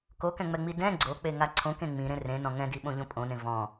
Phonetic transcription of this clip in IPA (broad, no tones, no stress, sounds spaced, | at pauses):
k o k ɛ̃ ŋ͡m ɛ ŋ͡m i d ɛ̃ ɡ͡ǀ o k͡p e ŋ a ǀʰ õ k ẽ ŋ͡m ĩ ɾ ẽ r ẽ n ɔ̃ ŋ ɛ̃ d i ɓ õ ʎ õ pʼ õ n ẽ v ɔ̃